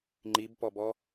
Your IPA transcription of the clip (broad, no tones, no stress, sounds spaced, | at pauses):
ŋ͡ǃ i b p ɔ b ɔ